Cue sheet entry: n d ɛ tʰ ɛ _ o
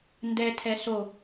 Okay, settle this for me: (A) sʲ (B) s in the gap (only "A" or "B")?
B